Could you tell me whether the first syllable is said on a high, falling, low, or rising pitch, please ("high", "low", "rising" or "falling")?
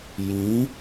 rising